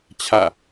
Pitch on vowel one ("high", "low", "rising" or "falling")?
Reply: falling